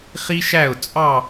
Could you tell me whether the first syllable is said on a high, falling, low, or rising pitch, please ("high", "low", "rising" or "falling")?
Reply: high